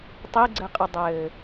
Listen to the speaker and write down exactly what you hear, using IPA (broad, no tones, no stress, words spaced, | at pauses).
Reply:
tˤiɡ͡ǀɘqʼɯdˤɘː